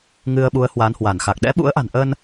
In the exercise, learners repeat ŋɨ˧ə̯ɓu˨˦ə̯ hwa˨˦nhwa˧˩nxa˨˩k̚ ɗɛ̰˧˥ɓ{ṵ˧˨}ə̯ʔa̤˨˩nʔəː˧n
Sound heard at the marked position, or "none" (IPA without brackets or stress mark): ṵ˧˥